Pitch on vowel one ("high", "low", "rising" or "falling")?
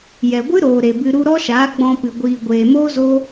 low